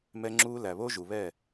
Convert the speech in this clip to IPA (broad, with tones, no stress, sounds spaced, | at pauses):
m ɛ˦ ŋ͡ǁ uː˦ l æ˨ β o˦ ʒ u˨ β ɛ˦˨